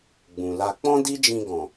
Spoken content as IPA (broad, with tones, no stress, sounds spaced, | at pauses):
ɡ͡b ũ˨ l a˧ k͡p ɔ̃˦ d i˦ d͡ʒ ĩ˧ ɡ ɔ̃˨